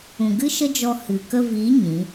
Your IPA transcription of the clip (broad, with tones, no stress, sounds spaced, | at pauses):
ũ˨ ɡ ɨ˦ ʃ ə˦ d͡ʒ ɔ˧ h ɨ˨ k ə˧ v i˨˦ ɲ ĩ˨˦